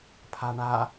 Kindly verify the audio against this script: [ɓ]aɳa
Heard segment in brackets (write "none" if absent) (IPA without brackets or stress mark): pʰ